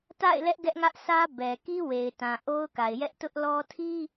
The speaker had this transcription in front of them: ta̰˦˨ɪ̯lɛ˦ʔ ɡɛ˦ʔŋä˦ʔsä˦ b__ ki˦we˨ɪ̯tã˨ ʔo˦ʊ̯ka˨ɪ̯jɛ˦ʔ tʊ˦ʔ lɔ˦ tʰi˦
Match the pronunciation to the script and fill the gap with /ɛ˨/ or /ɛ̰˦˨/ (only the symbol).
ɛ˨